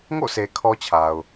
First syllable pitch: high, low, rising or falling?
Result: falling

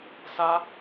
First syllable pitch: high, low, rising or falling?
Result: high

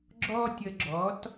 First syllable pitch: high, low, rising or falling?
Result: high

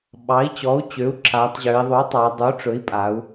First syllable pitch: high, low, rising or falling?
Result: rising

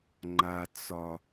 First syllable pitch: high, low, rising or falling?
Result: low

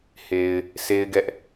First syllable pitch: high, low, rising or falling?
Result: low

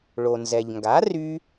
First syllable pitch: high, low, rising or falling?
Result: low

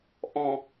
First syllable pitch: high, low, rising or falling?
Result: low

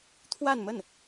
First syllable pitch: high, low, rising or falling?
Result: falling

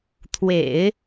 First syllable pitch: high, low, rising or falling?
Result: low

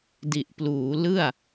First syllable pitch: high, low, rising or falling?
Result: low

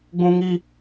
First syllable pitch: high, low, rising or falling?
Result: high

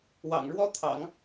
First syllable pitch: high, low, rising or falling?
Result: low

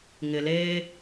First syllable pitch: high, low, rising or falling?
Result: low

